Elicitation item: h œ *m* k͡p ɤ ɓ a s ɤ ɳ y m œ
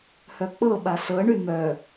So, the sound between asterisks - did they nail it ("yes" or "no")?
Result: no